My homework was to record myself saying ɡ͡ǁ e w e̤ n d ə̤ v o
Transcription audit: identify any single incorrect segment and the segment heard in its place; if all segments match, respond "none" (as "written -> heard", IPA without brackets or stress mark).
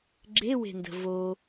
none